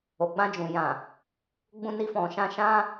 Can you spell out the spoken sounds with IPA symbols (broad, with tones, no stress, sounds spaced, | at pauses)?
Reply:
o˨ ɡ͡b ã˧ d͡ʒ ũ˨ j ã˨ | ɡ͡b ũ˧ n i˧ f ɔ̃˨ ʃ ã˧ ʃ ã˧